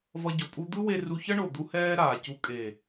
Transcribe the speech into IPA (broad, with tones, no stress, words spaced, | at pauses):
vʌ˧ ɟo˨pʼu˧d̪ɯ˦we˧ ru˧çʌ˦ɳo˨d̪u˧ hɛː˦ɾaː˨ cu˧ kʼe˨